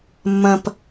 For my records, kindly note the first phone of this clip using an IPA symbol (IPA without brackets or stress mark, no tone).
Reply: mː